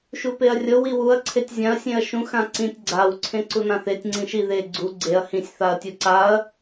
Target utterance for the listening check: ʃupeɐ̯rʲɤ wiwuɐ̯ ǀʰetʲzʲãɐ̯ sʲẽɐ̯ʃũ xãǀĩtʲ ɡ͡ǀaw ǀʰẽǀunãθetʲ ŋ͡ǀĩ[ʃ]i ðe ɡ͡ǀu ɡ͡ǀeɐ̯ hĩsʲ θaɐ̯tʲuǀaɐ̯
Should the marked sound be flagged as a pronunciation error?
no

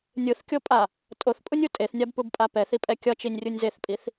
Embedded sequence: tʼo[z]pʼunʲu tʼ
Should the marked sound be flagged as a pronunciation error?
yes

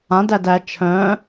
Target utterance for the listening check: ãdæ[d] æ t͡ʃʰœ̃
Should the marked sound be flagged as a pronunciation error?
no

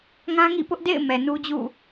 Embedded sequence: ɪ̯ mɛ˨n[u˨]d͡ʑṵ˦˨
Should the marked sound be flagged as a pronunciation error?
yes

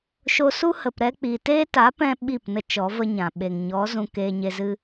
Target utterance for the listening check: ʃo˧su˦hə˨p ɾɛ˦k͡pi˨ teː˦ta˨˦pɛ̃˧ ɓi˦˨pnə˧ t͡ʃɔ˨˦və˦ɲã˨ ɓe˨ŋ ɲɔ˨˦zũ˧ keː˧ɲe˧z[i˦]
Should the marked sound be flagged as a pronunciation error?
yes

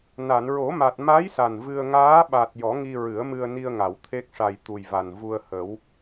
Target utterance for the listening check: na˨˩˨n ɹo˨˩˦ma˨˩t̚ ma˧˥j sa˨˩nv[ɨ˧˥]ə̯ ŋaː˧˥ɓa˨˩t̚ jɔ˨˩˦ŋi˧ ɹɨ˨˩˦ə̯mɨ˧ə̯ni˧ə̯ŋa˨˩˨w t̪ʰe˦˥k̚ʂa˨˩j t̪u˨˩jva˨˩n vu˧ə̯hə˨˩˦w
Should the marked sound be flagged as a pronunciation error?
yes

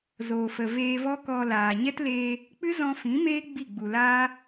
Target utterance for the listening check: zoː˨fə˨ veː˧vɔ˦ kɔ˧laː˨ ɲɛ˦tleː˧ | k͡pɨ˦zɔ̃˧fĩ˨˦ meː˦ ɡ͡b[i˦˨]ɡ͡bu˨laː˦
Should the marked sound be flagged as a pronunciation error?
no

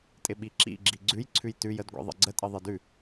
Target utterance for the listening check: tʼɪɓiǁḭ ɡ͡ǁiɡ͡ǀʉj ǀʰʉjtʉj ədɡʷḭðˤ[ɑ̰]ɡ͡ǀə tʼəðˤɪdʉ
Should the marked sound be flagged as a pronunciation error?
yes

